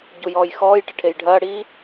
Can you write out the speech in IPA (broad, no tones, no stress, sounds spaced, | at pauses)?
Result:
ɟ u j ɔː j x ɔː j ʈ ɪ ʈʰ e j ɖʱ ɐː ɽ iː